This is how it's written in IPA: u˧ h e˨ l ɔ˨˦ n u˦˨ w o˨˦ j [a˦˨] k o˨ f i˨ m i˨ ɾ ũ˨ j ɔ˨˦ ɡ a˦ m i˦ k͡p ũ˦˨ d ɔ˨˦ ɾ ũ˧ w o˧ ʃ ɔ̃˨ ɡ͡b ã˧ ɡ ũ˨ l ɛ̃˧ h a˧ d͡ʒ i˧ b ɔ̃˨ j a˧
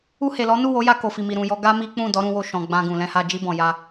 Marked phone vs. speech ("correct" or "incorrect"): incorrect